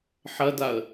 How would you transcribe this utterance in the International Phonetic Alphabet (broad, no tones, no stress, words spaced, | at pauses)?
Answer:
ħɐdaə̯